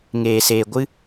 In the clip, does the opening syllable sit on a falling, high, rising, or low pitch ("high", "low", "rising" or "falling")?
low